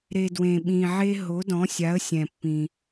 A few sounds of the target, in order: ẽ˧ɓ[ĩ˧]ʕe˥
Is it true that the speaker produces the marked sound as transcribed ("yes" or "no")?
yes